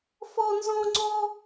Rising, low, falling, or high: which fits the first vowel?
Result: high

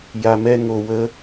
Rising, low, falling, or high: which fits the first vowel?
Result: low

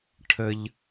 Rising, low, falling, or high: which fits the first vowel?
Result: high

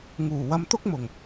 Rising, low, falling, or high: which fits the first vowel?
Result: low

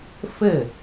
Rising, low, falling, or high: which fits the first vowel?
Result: falling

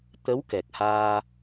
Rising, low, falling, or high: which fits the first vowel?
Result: rising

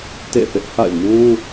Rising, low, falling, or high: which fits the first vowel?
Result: falling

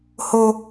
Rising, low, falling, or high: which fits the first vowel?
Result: high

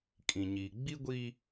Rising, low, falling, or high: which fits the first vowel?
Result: low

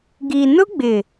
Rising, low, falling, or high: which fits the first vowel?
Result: low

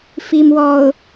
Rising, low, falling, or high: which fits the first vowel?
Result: low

